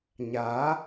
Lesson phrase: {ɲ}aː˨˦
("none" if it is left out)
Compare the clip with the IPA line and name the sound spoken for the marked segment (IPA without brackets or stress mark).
ɲ